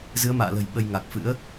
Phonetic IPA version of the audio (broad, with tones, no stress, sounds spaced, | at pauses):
z ɨ˨˦ ə̯ m a̰ː˧˨ l ə̤˨˩ j ɓ ə˧ j ŋ a˨˩ k̚ f ɨ̰˧˥ ə̯